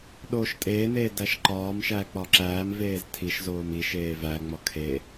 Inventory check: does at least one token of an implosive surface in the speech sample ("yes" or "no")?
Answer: yes